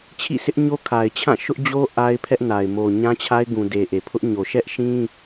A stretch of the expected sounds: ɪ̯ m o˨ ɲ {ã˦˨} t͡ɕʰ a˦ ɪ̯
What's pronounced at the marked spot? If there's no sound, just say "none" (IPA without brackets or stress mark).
ã˦